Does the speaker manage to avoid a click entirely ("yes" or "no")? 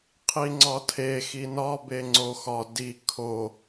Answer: no